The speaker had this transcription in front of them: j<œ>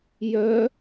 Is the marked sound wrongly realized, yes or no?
no